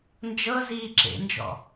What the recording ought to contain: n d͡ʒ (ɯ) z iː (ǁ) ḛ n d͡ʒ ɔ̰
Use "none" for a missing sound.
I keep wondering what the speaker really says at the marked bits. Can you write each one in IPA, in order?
ɤ, ǁ

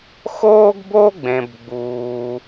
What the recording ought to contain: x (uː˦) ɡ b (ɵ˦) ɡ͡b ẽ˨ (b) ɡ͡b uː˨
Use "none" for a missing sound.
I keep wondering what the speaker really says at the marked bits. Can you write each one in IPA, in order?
oː˦, o˦, b

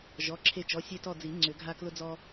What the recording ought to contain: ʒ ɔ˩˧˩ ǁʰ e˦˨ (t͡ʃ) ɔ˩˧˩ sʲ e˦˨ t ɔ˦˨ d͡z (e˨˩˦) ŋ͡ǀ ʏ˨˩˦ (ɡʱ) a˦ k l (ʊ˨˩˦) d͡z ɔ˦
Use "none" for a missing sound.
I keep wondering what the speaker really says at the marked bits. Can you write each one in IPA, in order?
t͡ʃ, i˨˩˦, ɡʱ, ʊ˦

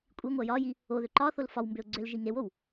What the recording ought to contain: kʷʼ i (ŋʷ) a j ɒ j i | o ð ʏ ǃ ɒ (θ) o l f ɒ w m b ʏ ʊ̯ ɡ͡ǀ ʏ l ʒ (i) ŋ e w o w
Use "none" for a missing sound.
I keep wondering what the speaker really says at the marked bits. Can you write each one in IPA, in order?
ŋʷ, θ, i

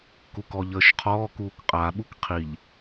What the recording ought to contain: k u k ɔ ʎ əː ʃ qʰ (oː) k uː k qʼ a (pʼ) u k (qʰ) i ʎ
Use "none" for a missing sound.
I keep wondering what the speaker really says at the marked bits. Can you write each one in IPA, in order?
ɔː, ɓ, qʰ

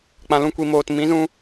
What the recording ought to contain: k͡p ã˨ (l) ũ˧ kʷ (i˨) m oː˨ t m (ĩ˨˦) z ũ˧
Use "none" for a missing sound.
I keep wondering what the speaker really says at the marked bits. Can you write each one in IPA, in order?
l, i˨, ĩ˨˦

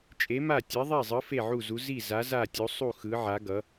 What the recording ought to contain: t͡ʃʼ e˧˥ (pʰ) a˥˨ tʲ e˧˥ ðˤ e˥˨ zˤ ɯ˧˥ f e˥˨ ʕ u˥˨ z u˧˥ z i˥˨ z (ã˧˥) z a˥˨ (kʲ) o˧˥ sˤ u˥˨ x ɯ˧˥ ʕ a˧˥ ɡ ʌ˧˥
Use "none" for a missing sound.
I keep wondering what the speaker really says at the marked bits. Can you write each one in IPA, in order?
m, a˧˥, tʲ

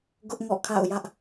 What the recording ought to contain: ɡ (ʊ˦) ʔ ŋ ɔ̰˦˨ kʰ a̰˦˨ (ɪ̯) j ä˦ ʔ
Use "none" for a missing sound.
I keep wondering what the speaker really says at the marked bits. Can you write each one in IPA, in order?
ʊ˦, ʊ̯

